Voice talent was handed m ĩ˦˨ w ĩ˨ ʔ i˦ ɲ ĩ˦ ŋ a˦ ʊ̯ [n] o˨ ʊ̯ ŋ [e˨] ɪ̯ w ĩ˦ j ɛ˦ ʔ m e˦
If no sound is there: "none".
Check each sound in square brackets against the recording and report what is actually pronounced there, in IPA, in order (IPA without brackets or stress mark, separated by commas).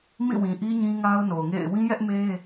n, ḛ˦˨